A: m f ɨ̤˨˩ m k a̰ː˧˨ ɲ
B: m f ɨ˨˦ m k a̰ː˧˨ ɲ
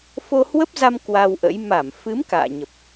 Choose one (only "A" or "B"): B